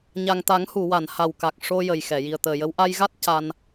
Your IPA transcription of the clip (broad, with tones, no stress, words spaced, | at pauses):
ɲa˨˩ŋt̪a˨˩˦ŋhu˨˩˨wa˨˩˨n ha˨˩wka˨˩k̚ ʂo˧ jə˨˩jxɛ˨˩˨ ji˨˩ə̯t̪əː˨˩jə˧˥w ʔa˧jɣa˦˥t̚ ca˧n